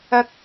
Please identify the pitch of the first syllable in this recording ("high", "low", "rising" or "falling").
low